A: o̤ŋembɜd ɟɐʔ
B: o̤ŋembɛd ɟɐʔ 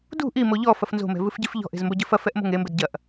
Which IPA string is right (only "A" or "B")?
B